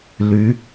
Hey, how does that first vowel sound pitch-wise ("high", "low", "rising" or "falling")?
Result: rising